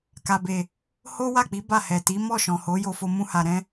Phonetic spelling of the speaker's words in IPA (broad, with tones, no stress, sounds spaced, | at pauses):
k a˨ b e˨ | h o˦ w a˦˨ k͡p i˨˦ b a˦˨ h ɛ˨ t i˨˦ m ɔ˦˨ ʃ ɔ̃˨ h o˨˦ j o˧ f o˧ m ũ˧ h a˨ ɾ ɛ̃˧